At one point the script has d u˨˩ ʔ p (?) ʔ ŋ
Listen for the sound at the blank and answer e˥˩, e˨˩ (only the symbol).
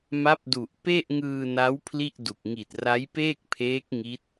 e˥˩